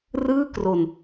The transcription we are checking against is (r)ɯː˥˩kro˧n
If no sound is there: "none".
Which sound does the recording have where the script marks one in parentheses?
r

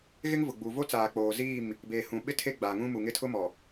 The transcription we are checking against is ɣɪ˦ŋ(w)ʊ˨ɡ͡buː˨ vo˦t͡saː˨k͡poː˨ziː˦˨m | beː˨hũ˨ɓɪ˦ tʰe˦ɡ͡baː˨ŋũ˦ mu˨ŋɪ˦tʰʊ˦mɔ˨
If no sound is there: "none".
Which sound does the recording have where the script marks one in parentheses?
v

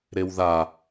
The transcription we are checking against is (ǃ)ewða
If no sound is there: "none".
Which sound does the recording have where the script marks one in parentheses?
ɾ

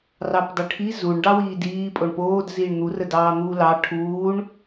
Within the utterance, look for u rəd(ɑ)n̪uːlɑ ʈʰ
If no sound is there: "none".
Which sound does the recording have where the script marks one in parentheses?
ɑː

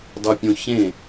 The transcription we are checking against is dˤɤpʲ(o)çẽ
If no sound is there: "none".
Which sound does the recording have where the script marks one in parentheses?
õ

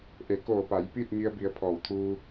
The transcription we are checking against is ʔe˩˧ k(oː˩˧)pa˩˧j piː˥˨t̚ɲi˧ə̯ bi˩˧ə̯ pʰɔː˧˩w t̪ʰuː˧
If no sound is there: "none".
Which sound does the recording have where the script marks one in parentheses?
oː˧˩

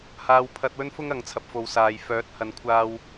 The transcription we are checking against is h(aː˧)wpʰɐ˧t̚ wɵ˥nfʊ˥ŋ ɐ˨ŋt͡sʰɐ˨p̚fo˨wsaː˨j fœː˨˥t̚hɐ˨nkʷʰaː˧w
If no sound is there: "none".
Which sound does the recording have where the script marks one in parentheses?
aː˧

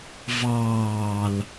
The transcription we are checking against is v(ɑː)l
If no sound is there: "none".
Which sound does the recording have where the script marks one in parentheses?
ɑː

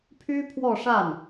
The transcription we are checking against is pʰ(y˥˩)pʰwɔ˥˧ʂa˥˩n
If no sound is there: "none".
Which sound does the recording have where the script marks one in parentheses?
y˥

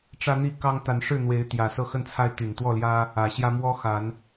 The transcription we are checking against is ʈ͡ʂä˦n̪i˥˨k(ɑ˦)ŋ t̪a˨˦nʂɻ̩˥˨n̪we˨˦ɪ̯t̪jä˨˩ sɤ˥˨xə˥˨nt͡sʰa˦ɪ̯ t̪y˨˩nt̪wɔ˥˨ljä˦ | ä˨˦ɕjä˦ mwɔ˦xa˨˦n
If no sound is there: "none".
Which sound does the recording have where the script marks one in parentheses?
ɑ˦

